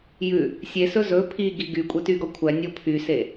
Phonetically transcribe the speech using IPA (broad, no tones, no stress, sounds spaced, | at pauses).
j ʉ | sʲ e s ɵ z ɵ pʰ i ɡ i ɡ y kʷʼ ɛ t y ɡ ɔ kʷʰ æ nʲ o pʰ y s e